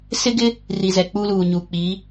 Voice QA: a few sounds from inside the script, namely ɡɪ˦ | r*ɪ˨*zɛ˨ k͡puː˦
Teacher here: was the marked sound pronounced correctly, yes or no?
no